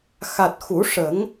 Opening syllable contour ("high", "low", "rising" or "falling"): low